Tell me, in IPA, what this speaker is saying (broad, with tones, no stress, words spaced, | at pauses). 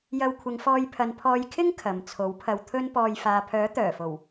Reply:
jɐ˧wkʷʰɪ˨˧ŋfɔː˧jpʰɐ˨˧n pʰɔː˧jkʰɪ˥ŋ kʰɐ˨m t͡sʰo˨˥wpʰɐ˧wt̪ʰɵ˥npɔː˧j faː˨pʰœː˨˥ t̪œː˨˩fo˨˩w